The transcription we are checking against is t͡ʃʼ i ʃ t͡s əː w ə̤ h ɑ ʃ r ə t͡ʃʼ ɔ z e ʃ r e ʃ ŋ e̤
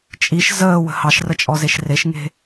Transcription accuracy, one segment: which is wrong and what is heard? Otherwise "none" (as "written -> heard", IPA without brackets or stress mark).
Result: t͡s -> z